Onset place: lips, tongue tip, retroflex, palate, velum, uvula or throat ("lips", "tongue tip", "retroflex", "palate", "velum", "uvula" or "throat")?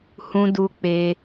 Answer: throat